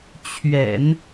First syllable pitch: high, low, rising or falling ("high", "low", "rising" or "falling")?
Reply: low